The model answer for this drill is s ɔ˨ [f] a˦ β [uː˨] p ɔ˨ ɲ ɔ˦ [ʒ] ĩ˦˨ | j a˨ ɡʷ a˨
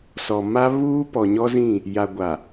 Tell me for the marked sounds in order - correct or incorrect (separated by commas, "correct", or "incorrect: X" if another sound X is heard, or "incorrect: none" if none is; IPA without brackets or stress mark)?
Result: incorrect: m, incorrect: uː˦, incorrect: z